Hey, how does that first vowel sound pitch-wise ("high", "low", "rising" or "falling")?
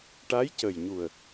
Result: rising